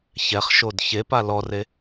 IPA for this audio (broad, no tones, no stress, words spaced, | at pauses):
çɛχʃod çepa lɔre